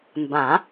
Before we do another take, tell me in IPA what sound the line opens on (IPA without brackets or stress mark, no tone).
m